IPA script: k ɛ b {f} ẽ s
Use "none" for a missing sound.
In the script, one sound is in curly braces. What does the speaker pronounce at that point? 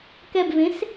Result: v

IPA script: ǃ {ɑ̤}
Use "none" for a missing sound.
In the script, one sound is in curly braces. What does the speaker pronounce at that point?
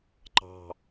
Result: ɑ̤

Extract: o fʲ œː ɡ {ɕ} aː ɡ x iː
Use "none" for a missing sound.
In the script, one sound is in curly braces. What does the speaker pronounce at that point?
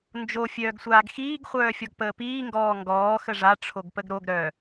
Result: sʷ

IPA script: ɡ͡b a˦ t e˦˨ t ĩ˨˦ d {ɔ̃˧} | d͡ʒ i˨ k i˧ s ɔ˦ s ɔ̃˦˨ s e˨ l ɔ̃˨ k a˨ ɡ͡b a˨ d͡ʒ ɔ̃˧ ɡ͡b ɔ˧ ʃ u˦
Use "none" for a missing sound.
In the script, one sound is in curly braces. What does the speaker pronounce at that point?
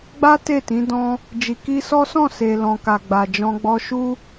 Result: ɔ̃˧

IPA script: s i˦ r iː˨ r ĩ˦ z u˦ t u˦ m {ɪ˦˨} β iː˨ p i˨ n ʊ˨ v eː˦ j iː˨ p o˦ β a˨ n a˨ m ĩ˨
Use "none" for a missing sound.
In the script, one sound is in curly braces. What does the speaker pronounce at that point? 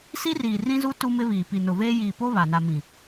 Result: ɪ˦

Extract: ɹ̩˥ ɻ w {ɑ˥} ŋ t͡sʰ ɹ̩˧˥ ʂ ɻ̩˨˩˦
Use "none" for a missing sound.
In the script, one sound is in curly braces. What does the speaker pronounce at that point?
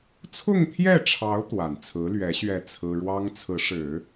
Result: ɑ˥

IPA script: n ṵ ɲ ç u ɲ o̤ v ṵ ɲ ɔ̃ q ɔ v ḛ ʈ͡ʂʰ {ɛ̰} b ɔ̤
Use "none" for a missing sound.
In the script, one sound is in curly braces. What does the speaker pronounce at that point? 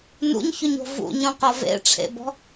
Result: ḛ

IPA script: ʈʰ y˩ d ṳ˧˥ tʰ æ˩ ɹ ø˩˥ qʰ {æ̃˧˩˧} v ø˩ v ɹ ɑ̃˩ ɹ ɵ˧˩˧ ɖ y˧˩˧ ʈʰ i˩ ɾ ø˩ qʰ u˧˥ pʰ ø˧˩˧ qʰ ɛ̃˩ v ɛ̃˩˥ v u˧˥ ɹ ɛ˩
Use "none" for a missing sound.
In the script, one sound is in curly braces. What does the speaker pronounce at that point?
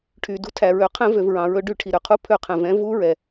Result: ɛ̃˧˩˧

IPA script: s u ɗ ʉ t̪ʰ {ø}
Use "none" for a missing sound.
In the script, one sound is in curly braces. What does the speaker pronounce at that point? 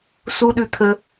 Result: ə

